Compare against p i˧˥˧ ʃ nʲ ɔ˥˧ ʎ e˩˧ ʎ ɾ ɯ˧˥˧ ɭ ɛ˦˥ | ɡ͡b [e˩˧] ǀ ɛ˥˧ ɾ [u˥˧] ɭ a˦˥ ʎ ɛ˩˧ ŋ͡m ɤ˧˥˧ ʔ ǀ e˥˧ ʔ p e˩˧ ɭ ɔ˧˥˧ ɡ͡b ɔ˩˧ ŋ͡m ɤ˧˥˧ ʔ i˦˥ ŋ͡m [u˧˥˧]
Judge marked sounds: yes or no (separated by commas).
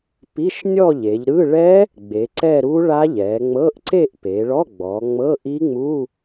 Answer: yes, no, yes